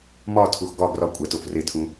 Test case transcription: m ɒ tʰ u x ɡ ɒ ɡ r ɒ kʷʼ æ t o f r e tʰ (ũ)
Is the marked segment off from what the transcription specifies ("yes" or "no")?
no